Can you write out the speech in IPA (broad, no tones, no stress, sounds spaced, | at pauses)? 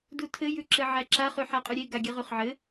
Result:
d u tʰ ɘ j ʉ ǁ ɘ ʕ æ ǁ a χ ʉ ħ a qʼ ʉ ɾʲ e ɡ a ɡʲ ɘ ʁ ʉ χ ʕ ɘ